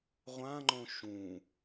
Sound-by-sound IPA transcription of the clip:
ʁʷãŋ͡ǃõ ʃũ

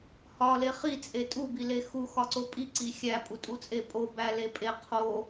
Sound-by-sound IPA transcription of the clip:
hɒle χit͡sʼe tʼubile xuxɒǀo pʼiǀi xʲæpʼutʼut͡sʼe pʼobæle pʼe qʰo

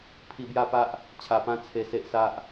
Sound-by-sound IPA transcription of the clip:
pʰi˧bja˥˧pa˦ʔ | t͡ɕʰa˨˩pã˧ t͡sʰe˧se˦ʔsa˦ʔ

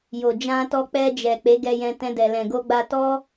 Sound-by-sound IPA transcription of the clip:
jo˨d͡ʒã˧tɔ˧k͡pɛ˧ d͡ʒɛ˨ k͡pe˨˦ɡɛ˧jɛ̃˧ tɛ̃˧dɛ˨ lɛ̃˨ɡo˧ ɡ͡ba˧tɔ˦

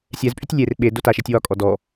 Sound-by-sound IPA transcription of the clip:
sʲɛzpʼytʲ lʲer ɓe dotaʃetʲ wɒkʼɔ dɔ

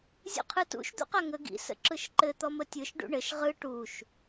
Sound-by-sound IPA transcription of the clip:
zʲṵqʰɯtṵʃ d̪ṵqaŋə ɡḭ sə̰ǁɯʃǃɘ t̪ɔmətʲɯʃ ɖṵɳɘʃ ʁɯ ʈuʃ

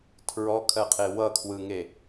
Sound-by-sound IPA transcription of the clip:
tʰɹɔkʰɜqʰe wʌkʰwɯŋe

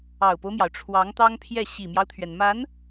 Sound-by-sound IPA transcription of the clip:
ɑ˨˩ʊ̯po˦ʊ̯mjɑ˩ʊ̯ ʈ͡ʂʰwɑ˧˥ŋt̪ɑ˥ŋpʰjɛ˥˩ ɕi˨˩mjɑ˦ʊ̯t̪ʰɥɛ˩nma˧˥n

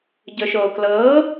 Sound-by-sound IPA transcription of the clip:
ɟɵʃoːklɤː

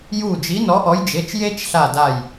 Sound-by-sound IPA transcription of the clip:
ju˦˨ d͡ʒi˨˦nɔ˨˦ʔɔ˨˦jd͡ʒe˩˧˩t͡ʃ je˥t͡ʃɬa˦˨da˦˨j

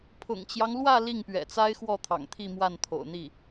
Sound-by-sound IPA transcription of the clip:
pʰʊ̰˨˩ŋt͡ɕjɑ˦ŋlwä˥˧ li˥˩ŋpɥɛ̰˨˩t͡sa˥ɪ̯ xwɔ˥˩t̪ʰɑ̰˨˩ŋt̪ʰi˥˧ mwa˥˩nt̪ʰo̰˨˩ʊ̯n̪i˥˩

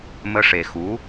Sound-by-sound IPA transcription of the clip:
mə˧ʂe˨xu˨˦

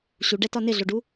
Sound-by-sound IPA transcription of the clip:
ɕuɖɛtɒ nɪɮoɖu

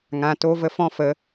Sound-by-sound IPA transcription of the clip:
ŋã˧to˦ və˦fɔ̃˦fə˨˦

